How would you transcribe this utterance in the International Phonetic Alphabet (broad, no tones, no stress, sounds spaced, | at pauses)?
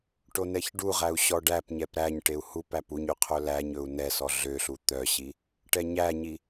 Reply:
ʈ o n ɛ ç ɖ u ʁ æ u̯ ɕ ɔ ɖ æ p ɲ ɛ p ɾ æ ɲ ʈ e u̯ h u p æ p u ɲ y qʰ ɵ l æ ɲ ɵ u̯ n ɛ s ɔ ɮ ø ɬ u t̪ œ ɕ i | ʈ ɛ ɲ æ ɲ i